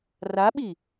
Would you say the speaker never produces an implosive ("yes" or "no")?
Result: no